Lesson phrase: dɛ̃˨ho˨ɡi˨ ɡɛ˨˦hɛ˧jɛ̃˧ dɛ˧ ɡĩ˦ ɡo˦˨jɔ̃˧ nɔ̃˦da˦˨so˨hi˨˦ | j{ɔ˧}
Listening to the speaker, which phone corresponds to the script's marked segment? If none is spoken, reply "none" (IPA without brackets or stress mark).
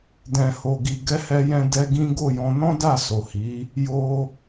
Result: o˧